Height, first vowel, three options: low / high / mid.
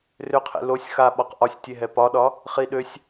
high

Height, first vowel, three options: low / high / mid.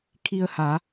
high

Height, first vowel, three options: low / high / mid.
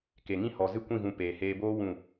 mid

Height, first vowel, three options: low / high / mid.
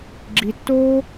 high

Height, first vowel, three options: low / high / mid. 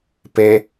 mid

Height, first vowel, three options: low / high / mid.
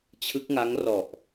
high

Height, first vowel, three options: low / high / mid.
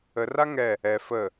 mid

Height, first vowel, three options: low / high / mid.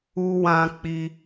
high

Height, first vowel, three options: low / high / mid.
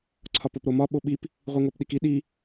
low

